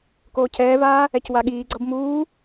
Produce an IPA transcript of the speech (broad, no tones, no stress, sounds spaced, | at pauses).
k oː cʰ ɛː v aː | ɛ c w a ɠ iː ɡ͡ǀ ʌ b m uː